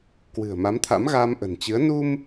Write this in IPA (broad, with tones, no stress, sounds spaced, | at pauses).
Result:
k w ɨ̤˨˩ ə̯ m a˨˦ m t̪ʰ a̰˧˥ m ɣ aː˧ m ʔ ə̤˨˩ n t͡ɕ ɨ˨˦ ə̯ n u˧ m